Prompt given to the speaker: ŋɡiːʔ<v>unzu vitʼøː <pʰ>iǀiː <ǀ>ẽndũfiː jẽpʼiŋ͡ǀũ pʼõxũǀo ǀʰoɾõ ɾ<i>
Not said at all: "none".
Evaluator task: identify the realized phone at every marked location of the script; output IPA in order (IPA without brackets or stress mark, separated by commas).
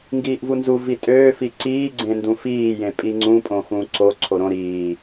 v, f, ɡ͡ǀ, iː